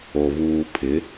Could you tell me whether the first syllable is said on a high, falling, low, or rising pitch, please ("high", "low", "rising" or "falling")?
low